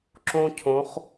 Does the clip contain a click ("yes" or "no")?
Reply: yes